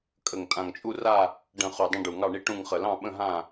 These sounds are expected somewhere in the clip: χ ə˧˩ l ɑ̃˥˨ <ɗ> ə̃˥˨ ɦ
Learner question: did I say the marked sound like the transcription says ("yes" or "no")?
no